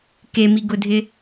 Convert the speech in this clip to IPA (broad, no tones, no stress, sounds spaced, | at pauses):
k e m i ɡ ʊ dʱ ɪ